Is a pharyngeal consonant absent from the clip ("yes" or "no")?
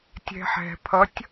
no